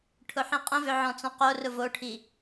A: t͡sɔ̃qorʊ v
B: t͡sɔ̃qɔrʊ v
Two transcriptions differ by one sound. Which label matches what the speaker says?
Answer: A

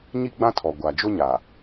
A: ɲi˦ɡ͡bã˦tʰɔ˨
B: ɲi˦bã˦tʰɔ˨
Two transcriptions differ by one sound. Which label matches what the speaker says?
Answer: A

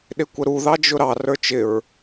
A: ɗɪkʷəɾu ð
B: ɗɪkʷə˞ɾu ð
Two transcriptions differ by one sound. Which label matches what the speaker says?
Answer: A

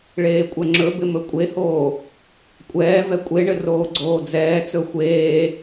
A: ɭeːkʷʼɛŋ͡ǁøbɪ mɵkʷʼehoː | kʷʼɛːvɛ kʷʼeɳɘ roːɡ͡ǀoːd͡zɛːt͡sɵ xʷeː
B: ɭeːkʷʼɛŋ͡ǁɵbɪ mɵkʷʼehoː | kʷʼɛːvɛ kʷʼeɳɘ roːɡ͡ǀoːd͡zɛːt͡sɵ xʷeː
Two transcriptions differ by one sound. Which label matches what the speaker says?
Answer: B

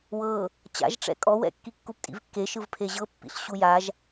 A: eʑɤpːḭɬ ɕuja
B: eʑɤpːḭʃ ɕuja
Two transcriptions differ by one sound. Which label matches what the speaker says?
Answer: A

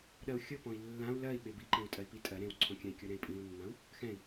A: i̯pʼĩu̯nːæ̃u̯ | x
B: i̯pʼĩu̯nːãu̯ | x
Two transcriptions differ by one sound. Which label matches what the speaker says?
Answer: B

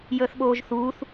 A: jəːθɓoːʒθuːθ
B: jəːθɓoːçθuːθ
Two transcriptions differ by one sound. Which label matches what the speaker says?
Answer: A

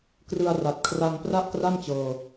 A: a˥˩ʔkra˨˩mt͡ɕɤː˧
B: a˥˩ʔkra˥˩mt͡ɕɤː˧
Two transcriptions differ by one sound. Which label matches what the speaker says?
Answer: B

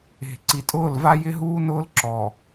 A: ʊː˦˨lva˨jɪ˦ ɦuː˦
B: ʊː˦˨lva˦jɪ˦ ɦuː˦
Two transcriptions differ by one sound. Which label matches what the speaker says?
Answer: B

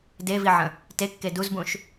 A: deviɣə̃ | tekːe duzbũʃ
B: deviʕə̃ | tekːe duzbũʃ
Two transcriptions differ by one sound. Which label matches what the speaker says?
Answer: B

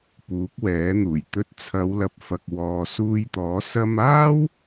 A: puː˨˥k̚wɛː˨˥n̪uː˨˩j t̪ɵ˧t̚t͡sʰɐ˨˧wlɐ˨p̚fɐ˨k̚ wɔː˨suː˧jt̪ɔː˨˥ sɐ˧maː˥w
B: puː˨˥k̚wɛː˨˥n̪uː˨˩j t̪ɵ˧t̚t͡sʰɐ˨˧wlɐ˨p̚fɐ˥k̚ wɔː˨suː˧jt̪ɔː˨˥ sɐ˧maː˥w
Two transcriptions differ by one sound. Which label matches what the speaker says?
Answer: A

